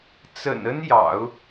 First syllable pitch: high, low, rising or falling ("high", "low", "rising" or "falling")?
low